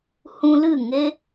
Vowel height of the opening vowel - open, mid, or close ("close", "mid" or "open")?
close